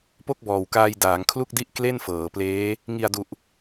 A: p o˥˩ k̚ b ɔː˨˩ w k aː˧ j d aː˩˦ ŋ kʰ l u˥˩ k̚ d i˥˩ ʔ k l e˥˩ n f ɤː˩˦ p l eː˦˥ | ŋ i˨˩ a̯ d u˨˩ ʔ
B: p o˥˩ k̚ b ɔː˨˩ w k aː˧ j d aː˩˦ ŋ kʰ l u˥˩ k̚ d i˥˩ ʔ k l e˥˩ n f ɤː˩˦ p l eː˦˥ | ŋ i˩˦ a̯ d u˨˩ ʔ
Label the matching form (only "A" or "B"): A